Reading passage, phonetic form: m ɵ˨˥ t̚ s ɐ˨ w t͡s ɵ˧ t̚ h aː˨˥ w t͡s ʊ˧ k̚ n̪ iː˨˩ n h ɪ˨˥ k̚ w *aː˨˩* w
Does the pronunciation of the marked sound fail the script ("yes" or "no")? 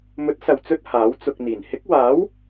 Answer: yes